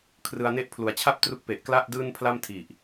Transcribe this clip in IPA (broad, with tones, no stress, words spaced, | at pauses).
kʰrɯ˧a̯ ne˦˥ʔ pʰlu˩˦a̯t͡ɕʰa˥˩p̚ tru˦˥k̚pe˨˩ʔ kla˥˩ʔ dɯː˥˩npʰla˥˩mtʰi˨˩ʔ